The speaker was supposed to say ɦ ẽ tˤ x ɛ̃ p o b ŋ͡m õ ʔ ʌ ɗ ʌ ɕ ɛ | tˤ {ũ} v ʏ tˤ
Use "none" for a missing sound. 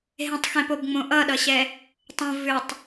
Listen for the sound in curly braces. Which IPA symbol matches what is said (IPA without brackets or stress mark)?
õ